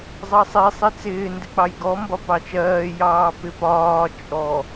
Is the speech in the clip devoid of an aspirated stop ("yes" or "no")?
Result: yes